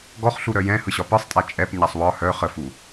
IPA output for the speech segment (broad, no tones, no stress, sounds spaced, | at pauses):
ɡ ɔ χ ɬ u ɾ œ j ɛ̃ h ɯ ɕ ɒ p ɯ sˤ tʼ a t͡ʃʼ ɛ p ɲ a sˤ w ɒ h œ χ ə f u